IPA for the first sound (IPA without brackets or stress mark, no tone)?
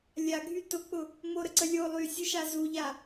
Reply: lʲ